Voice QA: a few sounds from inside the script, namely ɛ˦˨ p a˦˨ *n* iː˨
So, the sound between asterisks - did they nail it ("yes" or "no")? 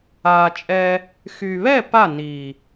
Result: yes